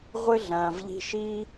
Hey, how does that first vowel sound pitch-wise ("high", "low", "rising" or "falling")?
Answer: high